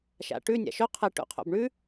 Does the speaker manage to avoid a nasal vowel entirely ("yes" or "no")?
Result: yes